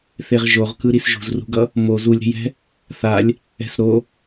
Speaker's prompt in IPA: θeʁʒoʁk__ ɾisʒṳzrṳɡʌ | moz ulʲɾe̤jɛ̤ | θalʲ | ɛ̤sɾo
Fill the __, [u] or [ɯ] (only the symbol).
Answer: ɯ